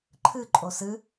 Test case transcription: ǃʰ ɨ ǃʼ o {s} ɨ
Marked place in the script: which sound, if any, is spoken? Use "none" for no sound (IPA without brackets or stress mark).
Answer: s